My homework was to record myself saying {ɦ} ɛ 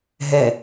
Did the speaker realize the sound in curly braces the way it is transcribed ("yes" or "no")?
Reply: yes